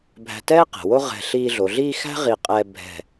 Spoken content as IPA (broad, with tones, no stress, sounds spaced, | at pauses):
bʱ æ̤˧ t ɛː˥ q ɛ̤˩˧ w o˥ ʁ ɛ̤˧˩ ɬ iː˧ ɮ o˩˧ ɮ iː˥˧ x æ̤˥ ʁ i˧˩ qʼ ɛː˧ bʱ ɛ̤˧˩